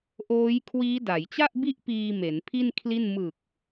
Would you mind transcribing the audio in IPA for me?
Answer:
ʔ oː˦˥ j kʰ w iː˦˥ d a˩˦ j t͡ɕ a˥˩ ʔ b i˥˩ ʔ p iː˧ m e˩˦ n pʰ i˥˩ n kʰ l i˥˩ n m ɯ˨˩ k̚

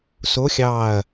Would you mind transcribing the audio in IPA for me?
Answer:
s o˧˥ xʲ ɑ˦˨ ɐ̯

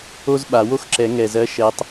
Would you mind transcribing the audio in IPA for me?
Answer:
o˥ z ɓ a˨˩˦ w o˥ x ǁ ɛ˨˩˦ ŋ ɛ˨˩ z ɜ˨˦ ʃ ɛ˨˦ tˤ

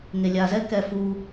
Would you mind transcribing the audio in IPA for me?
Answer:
ŋ e lʲ a z ɛ k ɛ f u

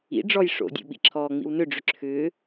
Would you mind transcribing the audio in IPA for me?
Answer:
ḭ ɖ͡ʐ ɔ j ʂ o̰ dʲ o̰ ɓ ḭ ǁʰ ɔː ŋ͡m ḭ w n ʏ ɖ͡ʐ ʏ ǁʰ ʏː

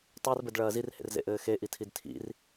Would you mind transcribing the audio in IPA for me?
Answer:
tˤ a r b ɘ d ɭ ɐː z i r h ḛ r z ḛ ʔ ɘː x e ʔ i tʰ i d tʰ ḭ r

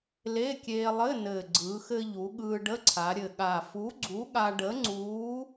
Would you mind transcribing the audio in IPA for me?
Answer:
l e˧˥˧ kʲ eː˧ lˠ ɘ˧˥˧ n ɘː˨˩ ɡ͡ǀ ɯː˩˧ x ɘ˧ ʎ u˩˧ ɠ ɯː˧ ɖ ə˧˥˧ ǀʰ a˩˧ ɾʲ ɘ˨˩ ɠ a˨˩ f u˨˥ ɡ͡ǀ u˨˥ ɠ a˧ ɖ ə˨˥ ŋ͡ǀ uː˨˥

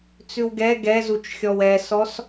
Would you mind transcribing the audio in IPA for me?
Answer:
t͡s ʉ w ɡ ɛ ɡ ɛ z u t͡ʃ xʲ ɔ w ɛ s ɔ s

